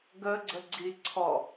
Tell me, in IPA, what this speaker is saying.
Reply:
ɡ ə ɡ͡ǀ ə ɡ͡ǀ i ǀʰ ɔ

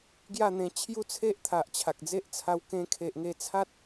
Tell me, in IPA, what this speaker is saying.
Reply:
ɡ j a˥˧ n̪ ẽ˧ t͡ɕʰ j u˦ t͡sʰ e˦ ʔ t̪ʰ a˨ ʔ t͡ɕʰ a˨ k̚ d͡z e˦ ʔ t͡sʰ a˧ w k ẽ˧ kʰ e˨ ʔ ŋ e˧ t͡sʰ a˦ t̚

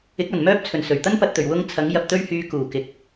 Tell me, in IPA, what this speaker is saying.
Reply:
ɪ˨˥ k̚ ɐ˨˩ n m œː˥ p̚ t͡sʰ ɵ˨˩ n s ɵ˨˩ ɥ t̪ ɐ˥ n p ɐ˨ t̚ t̪ ɵ˨˩ ɥ w ʊ˧ ŋ t͡sʰ ɐ˨˥ ŋ j ɐ˧ p̚ t̪ ɵ˥ ɥ h yː˧ k uː˨˩ k ɪ˨˥ k̚

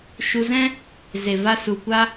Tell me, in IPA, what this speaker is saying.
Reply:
ʃ u˧ z ɛ̃˦ | z e˨ v a˧ s u˨ kʷ a˦

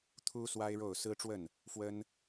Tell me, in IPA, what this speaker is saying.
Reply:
t̪ʰ u˥ s w a˥ ɪ̯ ɻ o˥˩ ʊ̯ s ɹ̩˥ ʈ͡ʂ w ə˥˩ n | f w ə˥ n

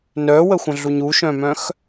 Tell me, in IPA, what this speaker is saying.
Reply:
n œ w ə xʷ ə̃ ɮ u ɲ u ʃ œ̃ m œ̃ x

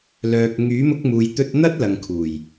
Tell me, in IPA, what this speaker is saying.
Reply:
l œː˨ k̚ ŋ yː˨˥ m ʊ˧ k̚ m uː˨ j t̪ ɵ˧ t̚ n̪ ɐ˥ t̚ l ɐ˨ ŋ kʰ uː˨˩ j

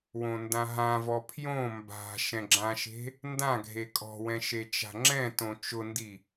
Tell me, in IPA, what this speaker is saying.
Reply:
w õ n d ã ɦ ã v ɔ pʰ j õ m b a̤ ʃ ɛ̃ ɡ͡ǁ ã ʃ e̤ | n d ã ɡʱ e kʼ ɔ̤ w ɛ̃ ʃ e t͡ʃ a̤ ŋ͡ǁ ɛ̃ t õ t͡ʃ ʊ n d i

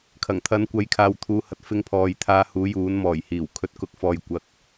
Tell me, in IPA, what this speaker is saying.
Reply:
kʰ ɐ˨˩ ŋ t̪ʰ ɐ˨˥ n kʷ ɐ˨˥ j kʰ aː˨ w t̪ʰ uː˨ h ɐ˨ t̚ f ɪ˧ ŋ pʰ ɔː˨˧ j t̪ʰ aː˧ h uː˨˥ j uː˨˥ n m ɔː˨˩ j h iː˨˩ w kʰ ɵ˨ t̚ k ʊ˨˥ k̚ f ɔː˨ j kʷ ɐ˨˥ k̚

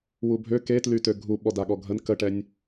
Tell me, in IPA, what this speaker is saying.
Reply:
w u bʱ ø k e t l y t ø ɡʱ u ɓ ɔ d a ɠ ɔ ɡʱ ə n k ə ʈ ɛ nʲ

